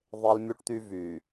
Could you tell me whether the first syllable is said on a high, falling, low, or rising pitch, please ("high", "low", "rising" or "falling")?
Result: high